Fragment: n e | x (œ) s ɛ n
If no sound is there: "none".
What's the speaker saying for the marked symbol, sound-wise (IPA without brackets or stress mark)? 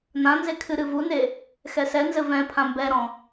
ɛ